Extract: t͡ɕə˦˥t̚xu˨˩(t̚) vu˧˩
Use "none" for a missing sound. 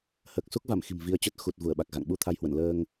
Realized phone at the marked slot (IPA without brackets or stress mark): t̚